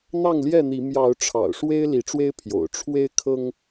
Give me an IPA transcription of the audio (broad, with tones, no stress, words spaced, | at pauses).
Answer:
n̪ɑ˥˨ŋljɛ˥˨n̪i˨˦ mjɑ˨˦ʊ̯ʈ͡ʂʰɑ̰˨˩ʊ̯ʂwe˦ɪ̯ li˨˦ʈ͡ʂwe˦ɪ̯pʰjo̰˨˩ʊ̯ ʈ͡ʂʰwe˦ɪ̯kʰɤ˦ŋ